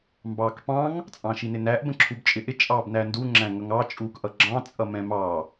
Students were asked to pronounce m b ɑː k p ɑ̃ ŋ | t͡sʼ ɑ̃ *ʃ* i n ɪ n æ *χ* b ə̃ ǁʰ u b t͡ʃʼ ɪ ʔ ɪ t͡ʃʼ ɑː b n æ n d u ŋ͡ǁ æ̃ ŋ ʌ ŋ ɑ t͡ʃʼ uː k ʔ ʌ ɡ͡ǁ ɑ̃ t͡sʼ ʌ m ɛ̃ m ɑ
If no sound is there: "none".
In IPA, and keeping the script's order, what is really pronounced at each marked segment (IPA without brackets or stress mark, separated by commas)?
ʃ, ʔ